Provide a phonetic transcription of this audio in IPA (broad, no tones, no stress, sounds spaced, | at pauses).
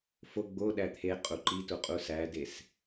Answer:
f o ɡ͡b o ɗ æ t̪ʰ e qʼ u ǃ i t u qʼ u s æ d e s